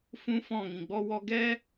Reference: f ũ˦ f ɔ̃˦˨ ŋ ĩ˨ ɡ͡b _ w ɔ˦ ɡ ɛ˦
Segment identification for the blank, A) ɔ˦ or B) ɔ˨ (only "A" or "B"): A